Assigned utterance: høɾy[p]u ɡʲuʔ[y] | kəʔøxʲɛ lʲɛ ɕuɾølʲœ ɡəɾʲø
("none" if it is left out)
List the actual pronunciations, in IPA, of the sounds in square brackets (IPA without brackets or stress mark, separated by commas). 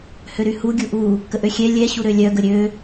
h, u